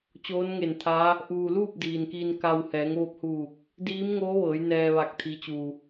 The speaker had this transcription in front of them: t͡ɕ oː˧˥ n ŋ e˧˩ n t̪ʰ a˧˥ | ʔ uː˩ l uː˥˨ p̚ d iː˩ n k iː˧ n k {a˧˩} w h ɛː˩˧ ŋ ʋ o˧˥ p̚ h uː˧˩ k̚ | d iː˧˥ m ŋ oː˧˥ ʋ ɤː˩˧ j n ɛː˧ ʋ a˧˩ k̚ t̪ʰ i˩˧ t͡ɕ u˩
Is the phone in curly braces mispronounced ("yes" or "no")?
yes